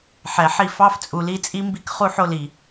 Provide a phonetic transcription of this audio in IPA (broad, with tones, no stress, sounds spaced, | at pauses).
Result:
ħ ɛ˨ ħ i˦˨ f ɑ˦ f t͡sʼ u˨ l i˧ t͡sʼ i˦ m b i˦ k χ u˦ ħ o˦ l i˨